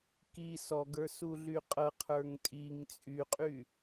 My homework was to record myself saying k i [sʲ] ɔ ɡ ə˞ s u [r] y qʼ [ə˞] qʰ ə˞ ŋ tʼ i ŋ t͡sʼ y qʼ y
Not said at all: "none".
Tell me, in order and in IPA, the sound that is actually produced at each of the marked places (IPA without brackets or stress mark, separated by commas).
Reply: s, ɮ, ɤ